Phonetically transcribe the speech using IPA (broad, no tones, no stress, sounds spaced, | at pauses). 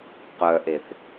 q œ ʔ e θ